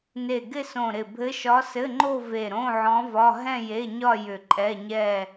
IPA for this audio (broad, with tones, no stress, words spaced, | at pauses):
ne˧˩ɡɪ˥˧sõ˧˩ɾɪ˧˩ bʱɘ˧˥ʃɒ˧˥sɘ˧˥˧ŋ͡ǃo˥˧ ve˧˩ɾõ˧˥˧ʕɔ̃˧˥vɒ˧˥˧ ɦɛ̃˥˧je˧˥˧ɲɒ˥˧ jʏ˧˩ǃʼɛ˧˥˧ɲɛ˥˧